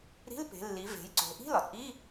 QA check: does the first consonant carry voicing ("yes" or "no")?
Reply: yes